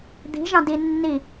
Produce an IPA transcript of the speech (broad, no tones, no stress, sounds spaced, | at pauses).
d̪ i̤ ʒ ɑ̃ d i nː i